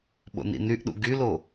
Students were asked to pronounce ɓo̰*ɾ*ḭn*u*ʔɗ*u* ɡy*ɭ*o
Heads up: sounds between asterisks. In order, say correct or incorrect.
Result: incorrect: n, incorrect: y, incorrect: ṵ, incorrect: l

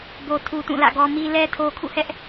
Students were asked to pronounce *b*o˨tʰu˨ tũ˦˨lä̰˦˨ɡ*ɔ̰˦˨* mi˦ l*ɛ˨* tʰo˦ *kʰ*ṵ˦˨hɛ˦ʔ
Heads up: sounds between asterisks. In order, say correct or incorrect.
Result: correct, incorrect: ɔ˦, incorrect: ɛ˦, correct

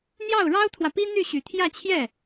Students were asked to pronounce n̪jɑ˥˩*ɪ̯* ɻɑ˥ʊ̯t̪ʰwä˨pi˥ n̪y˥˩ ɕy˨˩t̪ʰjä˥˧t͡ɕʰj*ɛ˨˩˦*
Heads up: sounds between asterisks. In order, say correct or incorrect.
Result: incorrect: ʊ̯, incorrect: ɛ˥˩

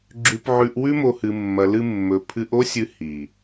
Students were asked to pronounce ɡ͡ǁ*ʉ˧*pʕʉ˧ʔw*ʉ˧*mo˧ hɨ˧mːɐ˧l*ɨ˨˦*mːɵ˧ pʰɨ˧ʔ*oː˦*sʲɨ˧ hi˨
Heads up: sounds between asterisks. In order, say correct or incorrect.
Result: correct, incorrect: ʉ˦, incorrect: ɨ˦, incorrect: o˦

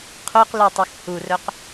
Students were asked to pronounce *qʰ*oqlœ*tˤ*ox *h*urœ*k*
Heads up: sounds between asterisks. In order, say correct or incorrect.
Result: correct, correct, correct, incorrect: q

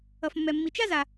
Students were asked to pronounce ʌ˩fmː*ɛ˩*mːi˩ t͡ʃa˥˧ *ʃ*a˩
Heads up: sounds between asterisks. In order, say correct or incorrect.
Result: correct, incorrect: z

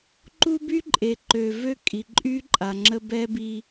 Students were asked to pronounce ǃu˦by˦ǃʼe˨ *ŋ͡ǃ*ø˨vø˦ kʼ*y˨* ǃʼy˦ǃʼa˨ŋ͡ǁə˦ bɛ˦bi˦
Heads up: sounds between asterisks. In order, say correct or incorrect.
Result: incorrect: ǃ, incorrect: i˨

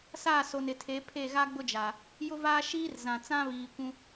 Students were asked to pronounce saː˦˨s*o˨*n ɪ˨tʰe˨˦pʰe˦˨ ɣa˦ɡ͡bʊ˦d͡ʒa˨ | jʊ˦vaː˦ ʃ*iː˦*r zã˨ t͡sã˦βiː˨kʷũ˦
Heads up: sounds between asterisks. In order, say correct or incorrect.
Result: correct, correct

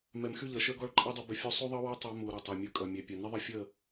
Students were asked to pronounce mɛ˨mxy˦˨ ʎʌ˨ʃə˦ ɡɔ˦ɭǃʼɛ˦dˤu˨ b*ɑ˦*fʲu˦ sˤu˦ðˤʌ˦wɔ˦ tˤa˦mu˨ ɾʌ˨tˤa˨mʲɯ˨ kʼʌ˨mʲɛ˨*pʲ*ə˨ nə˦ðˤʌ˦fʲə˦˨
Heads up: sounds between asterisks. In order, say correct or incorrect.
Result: incorrect: ə˦, correct

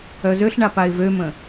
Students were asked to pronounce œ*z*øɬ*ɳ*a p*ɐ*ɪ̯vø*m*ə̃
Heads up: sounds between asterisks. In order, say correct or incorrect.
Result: correct, correct, incorrect: a, correct

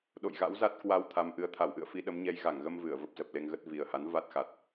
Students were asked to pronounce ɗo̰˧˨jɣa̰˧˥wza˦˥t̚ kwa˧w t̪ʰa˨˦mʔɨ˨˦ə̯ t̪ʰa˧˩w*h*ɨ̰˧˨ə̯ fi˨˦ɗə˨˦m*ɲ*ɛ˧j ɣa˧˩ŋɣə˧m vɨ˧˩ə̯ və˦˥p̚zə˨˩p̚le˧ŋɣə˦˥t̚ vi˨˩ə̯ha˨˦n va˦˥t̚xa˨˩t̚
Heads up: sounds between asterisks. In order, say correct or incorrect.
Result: incorrect: ʔ, correct

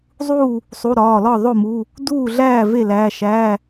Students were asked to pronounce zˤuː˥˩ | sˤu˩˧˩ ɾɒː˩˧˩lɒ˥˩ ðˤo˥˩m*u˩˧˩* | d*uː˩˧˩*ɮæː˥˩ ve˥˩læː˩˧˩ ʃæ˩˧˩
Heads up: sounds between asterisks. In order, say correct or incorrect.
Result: correct, incorrect: uː˥˩

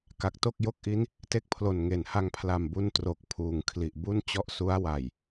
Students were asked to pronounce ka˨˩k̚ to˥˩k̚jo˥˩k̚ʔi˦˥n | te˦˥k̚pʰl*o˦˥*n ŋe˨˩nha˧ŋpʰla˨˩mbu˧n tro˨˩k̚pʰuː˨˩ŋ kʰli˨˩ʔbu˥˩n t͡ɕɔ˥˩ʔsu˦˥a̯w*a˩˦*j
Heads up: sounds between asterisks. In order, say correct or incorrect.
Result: incorrect: o˨˩, incorrect: a˨˩

